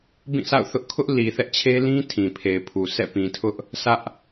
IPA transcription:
b ĩ˦˨ sʰ a̰˦˨ ʊ̯ θ ʊ˦ ʔ kʰ ʊ˦ ʔ l i˨ θ ɛ˦ ʔ t͡ɕʰ e˦ l ĩ˦ tʰ ĩ˨ pʰ e˨ ɪ̯ pʰ u˨ sʰ ɛ̰˦˨ p ĩ˨ tʰ ʊ˦ ʔ | sʰ ä˦ ʔ

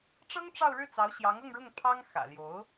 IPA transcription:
ʈ͡ʂ ɤ˥ ŋ ʈ͡ʂ ɑ˥˧ ʊ̯ ɻ ɻ̩˥˩ t͡s ɑ˧˥ ʊ̯ ɕ j ɑ˧˥ ŋ ɤ˥˧ ŋ ɻ ʊ˥˩ ŋ pʰ ɑ˥ ŋ x ä̰˨˩ l j o˧˥ ʊ̯

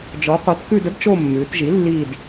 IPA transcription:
d͡ʒ ɔ˩˥ qʷ ə˞˩˥ t k ʉ˦˨ d ə˧˥ d t͡ʃ o˦˨ mː ʉː˩˧ t ʒ i˩˥ lː iː˦˨ d

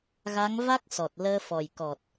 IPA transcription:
ɣ a˧˥ ŋ v a˦˥ k̚ s ɔ˨˩ t̚ l əː˧ f ɔ˨˩ j k ɔ˨˩ t̚

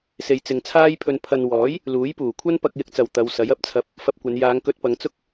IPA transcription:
s e˨ j t͡s ɪ˨ ŋ t͡sʰ aː˥ j pʰ ɵ˧ n pʰ ɐ˨ n w ɔː˨˥ j | l uː˨˥ j p uː˨˩ kʷʰ ɐ˥ n p ɐ˨ k̚ j ɪ˨ k̚ t͡s ɐ˨˩ w t̪ ɐ˨˧ w s ɐ˨˥ j ɐ˨ p̚ t͡sʰ ɐ˨˥ p̚ | f ɐ˧ p̚ kʷ ɐ˨˧ n j aː˨˧ ŋ k ɵ˧ t̚ p ɐ˨˧ ŋ t͡s ʊ˥ k̚

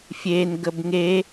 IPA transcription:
fʲ e n ɡ ə b ŋ e

